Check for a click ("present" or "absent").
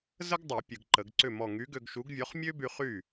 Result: present